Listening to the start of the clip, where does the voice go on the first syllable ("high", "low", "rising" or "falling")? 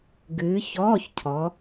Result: rising